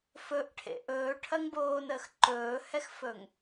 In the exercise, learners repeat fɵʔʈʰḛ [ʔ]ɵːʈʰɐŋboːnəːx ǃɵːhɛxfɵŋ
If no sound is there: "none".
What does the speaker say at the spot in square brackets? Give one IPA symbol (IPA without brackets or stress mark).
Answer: ʔ